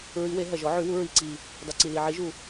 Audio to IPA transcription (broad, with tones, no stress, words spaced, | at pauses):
ɹi˨˩˦we˨˩˦ ɦɐ˨˩ʒɔ˨˩˦ʕy˨˩˦wu˨˩˦ ɹi˨˩ǀi˨˩ | dˤo˨˩ǀi˨˩ li˨˩ʕi˨˩˦ʒu˨˩